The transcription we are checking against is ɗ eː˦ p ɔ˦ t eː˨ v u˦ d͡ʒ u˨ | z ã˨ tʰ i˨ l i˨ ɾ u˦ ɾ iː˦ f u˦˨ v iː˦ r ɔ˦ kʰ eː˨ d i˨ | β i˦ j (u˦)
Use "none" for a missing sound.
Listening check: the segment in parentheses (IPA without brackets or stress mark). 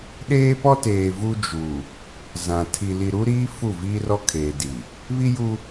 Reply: u˦